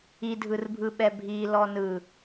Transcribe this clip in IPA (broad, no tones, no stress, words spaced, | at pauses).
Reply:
idʱɯrbʱɯɓɛ bʱi lɔnɯ